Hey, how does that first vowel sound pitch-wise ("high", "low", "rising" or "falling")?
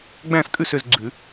falling